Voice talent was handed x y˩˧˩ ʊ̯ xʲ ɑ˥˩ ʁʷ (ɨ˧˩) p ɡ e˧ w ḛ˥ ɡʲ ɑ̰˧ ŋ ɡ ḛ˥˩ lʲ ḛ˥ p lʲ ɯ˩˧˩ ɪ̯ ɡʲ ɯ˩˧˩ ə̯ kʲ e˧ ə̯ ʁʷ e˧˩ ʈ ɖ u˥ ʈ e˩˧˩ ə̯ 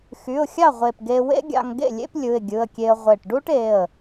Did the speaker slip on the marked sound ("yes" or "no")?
yes